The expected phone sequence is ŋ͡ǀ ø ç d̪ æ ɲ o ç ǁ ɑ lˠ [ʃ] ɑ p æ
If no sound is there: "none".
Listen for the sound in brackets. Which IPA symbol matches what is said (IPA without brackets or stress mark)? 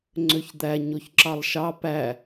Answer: ʃ